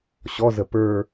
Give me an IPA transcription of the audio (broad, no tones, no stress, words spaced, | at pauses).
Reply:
ɕɔzə pə˞